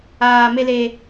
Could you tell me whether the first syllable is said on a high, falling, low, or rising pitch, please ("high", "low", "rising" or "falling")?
low